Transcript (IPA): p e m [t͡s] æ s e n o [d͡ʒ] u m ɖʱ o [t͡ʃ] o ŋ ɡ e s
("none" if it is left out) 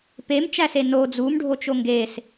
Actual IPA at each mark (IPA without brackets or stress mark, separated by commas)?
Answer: t͡ʃ, d͡z, t͡ʃ